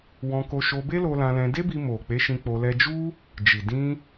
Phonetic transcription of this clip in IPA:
w ɔ̃˧ k o˧ ʃ o˧ b e˦ l o˧ l ã˧ l ɛ̃˧ d e˦ b i˧ m o˨ k͡p e˨˦ ʃ ĩ˧ k͡p o˧ l ɛ˦ d͡ʒ u˦ | d͡ʒ i˨ d ĩ˧

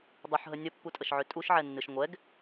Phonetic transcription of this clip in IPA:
dˤ ʊ ħ ɦ ə nʲ ə pː u tʼ ə ʃ ʕ ø tʼ u ʃ ʕ ɛ nː ɨ ʃ ŋʷ ɛ ɡ

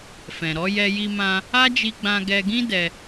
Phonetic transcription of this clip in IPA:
f ɛ̃˨ ɾ ɔ˨˦ j ɛ˧ j i˧ m ã˧ | a˦ d͡ʒ i˧ ɡ͡b ã˧ ɡ ɛ˧ ɡ ĩ˦ d ɛ˧

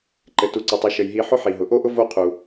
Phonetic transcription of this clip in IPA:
ǃ ɘ˩ t u˩ ǀ o˩ tˤ i˨ ʃ ɘ˩ j ɦ i˨ ħ ʊ˥ ħ i˩ ɦ ʊ˩ ʔ o˥ ʔ ʊ˥ v o˦ qʰ u˩

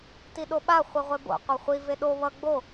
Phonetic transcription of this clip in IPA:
t i ɗ o ɓ a χʷ i ʁʷ e b o̰ qʷ e χʷ i v e ɗ o β ʌ ɡ͡b o

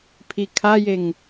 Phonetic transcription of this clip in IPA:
pʰ i kʰ a j e ŋ

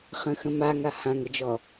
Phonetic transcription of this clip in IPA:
χ ə̃ x ə̃ m a ŋ a h ã ŋ ə d͡ʒ ɔ

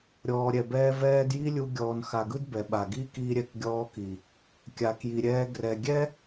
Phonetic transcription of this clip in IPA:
ɾʲ ɔː˨ ɾʲ ɛ˨ b ɛː˧ v ɛː˧ d j i˦ lʲ u˧ ɡʲ ɔː˨ n x a˨ ɡ ɯ˦ d b ɛ˨ ɓ a˨ ɡ iː˦ k iː˧ ɾʲ ɛ˨ k ɡʲ ɔː˧ k i˨ | kʲ a˨ k j i˨ ɾʲ ɛː˧ ɡ r ɛ˨ ɡʲ ɛ˦

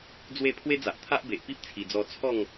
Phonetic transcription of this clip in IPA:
d͡z w e˥˧ pʰ w e˦ d͡z a˨ ʔ t̪ʰ a˦ ʔ b e˨ ʔ p i˦ p̚ t͡sʰ i˨˩ d͡z ɔ˧ t͡sʰ ɔ˥˧ ŋ

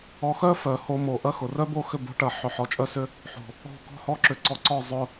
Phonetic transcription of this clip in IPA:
ɔ˨ x œ˦ f œ˨ h o˧ m o˨ ʔ ɐ˦ x ʊ˨ r œ˦ b o˦˨ x ʏ˦˨ b o̤˧ ʈ ɐ˨ ħ ʏ˨ ħ ɔ˨ t͡ʃʼ œ˦ s ʏ˦ | ħ o̤˨ | ɔ̤˦˨ k ɔ̤˧ h ɔ˧ ǁ ʏ˨˦ ǀ ɔ˧ ǀ ɔ˦˨ zˤ ʊ˧

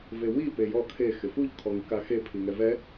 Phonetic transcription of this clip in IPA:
v e w i p e j ɔ kʰ e x ɪ f u ʎ kʰ ɔ ŋ i k a x e pʰ i ŋ ɛ v ɛ

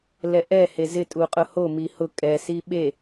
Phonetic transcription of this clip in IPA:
l ɛ ʔ ɛ h e z ɪ tʼ u qʼ ʊ h o m i h ʊ kʼ ɛ s i ɓ e

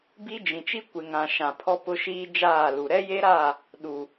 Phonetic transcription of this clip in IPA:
b i˦ d͡ʒ ĩ˨ t͡ʃ i˦ kʷ ɪ˨ ŋ ã˨ ʃ ã˨ pʰ ɔ˦ p ʊ˦ ʃ iː˦ d͡ʒ aː˦˨ l u˨ ɾ ɛ˦ j e˦ ɾ a˦˨ | ɗ u˨

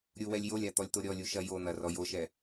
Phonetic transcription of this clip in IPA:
ɾʲ u w ɛ lʲ j o lʲ a t̪ ɔ lʲ t̪ o ɾʲ ɔ lʲ u ʃ ɐ j o n̪ ɐ r ɔ j o ʃ ɛ

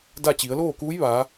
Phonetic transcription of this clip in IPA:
d a˥˨ t͡ɕ i˩˧ ə̯ l oː˥˨ k uː˧˥ j ʋ aː˩˧

